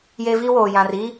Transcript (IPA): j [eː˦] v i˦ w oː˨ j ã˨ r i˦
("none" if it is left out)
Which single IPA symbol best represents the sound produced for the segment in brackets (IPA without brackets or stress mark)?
e˦